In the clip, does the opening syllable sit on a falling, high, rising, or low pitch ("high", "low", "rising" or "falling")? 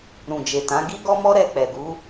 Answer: low